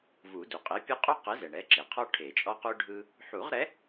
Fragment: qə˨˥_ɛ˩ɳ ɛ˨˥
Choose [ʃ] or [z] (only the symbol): z